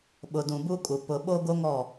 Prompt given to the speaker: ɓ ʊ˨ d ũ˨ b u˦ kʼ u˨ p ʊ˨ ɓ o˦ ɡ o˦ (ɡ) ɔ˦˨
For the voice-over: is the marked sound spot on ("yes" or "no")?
no